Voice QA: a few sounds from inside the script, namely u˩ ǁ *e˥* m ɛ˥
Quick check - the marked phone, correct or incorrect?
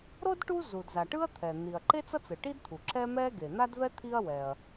incorrect